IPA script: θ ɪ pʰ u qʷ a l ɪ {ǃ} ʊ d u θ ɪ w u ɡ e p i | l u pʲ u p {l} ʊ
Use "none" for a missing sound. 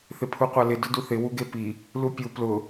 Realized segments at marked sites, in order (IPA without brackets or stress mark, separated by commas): d, l